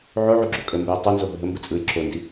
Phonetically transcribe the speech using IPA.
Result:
ʕoʕuɡ͡ǁo kʼəmbəjɪ tˤɯnzoɦə ɦəmbɯ t͡sʼɯj ǁondi

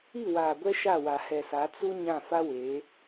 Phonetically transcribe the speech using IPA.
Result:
i˦˨waː˨ɡʷɛ˦ ʃa˦˨wa˨hɛ˨sa˨˦ t͡su˦ ɲã˦˨ fa˦weː˨˦

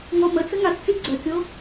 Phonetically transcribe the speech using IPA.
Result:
ŋɔmət͡sə ŋatt͡si ɡ͡ǀœkʲo

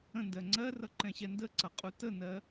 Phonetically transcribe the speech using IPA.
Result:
ə̃ndɜ ŋ͡ǀɜrʌ ǃɛ̃ɕɛndəǀʌ qʼutənɜ

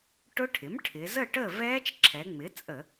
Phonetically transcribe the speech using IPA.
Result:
ʈʊ˦˥ʈʰɪ˩˥m ʈʰɪ˩˧ zə˥˨ʈə˥˨ vɛː˦˥t͡ʃǁʰɛ˩˧ŋ͡mɪ˩˥ t͡sʼə˧˩˧

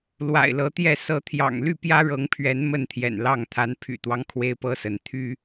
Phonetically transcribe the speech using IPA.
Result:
lwa̰˨˩ɪ̯lɤ˨˦t̪jɛ˥˨ sɤ˨˦t̪ʰjɑ̰˨˩ŋly˥˨ pjä˦ɻɤ˨˦ŋpʰɥɛ˨˦n mə˥˨nt̪ʰjɛ̰˨˩nlɑ˥˨ŋ t̪ʰa˨˦npʰy̰˨˩t̪wɑ˦ŋ kʰwe˦ɪ̯pɤ˦sə˨˦n t̪ʰy˦

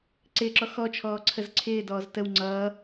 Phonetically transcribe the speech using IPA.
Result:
ǀɪːǁɔ xɔt͡ʃʰɔː ǀʰəzǀʰɪːdɔːz təw ŋ͡ǀʌː

